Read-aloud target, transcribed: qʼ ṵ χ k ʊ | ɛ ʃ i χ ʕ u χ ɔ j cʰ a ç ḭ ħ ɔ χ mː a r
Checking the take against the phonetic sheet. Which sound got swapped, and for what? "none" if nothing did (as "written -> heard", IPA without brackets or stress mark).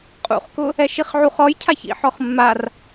none